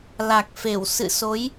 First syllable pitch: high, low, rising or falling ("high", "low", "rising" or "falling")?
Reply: low